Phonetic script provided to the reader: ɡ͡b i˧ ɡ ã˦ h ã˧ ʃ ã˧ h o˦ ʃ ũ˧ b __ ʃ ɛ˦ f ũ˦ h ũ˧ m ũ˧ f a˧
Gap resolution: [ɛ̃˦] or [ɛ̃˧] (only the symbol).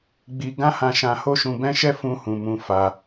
ɛ̃˦